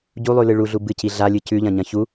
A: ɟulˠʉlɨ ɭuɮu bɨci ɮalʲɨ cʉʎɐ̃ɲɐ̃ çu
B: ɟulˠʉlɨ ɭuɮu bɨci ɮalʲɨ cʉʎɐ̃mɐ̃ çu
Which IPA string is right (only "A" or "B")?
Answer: A